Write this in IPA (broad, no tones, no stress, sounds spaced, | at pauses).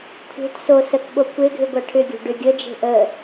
kʷʰ e̤ t s o s ə k ɓ o kʷ e ɡʱ ʏ ɡʷ a ʈʰ ʏ ɡʲ o̤ ɖ ʏ ɡʲ ə d͡ʒ e̤ ʔ ə